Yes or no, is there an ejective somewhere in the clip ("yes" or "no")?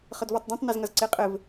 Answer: yes